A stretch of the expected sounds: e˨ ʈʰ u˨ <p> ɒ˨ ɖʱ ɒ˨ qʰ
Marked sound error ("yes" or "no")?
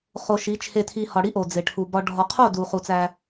yes